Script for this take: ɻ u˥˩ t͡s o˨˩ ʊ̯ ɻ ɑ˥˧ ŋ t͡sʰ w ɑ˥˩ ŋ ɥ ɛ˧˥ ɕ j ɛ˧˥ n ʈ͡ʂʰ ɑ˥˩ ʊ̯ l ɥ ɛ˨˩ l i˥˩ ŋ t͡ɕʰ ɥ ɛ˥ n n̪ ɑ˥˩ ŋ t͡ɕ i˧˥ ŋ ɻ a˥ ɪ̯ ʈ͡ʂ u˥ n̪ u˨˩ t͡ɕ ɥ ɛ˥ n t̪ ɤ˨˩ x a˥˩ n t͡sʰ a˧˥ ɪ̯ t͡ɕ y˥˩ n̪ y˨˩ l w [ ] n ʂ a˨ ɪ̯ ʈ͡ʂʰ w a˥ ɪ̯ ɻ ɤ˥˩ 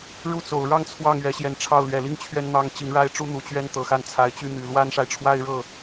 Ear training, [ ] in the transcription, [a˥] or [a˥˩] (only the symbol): a˥